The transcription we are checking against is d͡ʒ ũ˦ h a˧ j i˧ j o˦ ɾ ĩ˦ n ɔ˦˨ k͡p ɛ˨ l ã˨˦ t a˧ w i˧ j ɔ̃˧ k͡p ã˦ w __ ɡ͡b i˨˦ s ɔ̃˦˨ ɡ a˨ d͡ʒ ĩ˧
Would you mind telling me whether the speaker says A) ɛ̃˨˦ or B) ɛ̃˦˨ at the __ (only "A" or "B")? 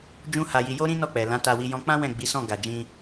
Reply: B